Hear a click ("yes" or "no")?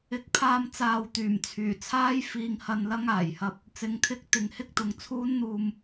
no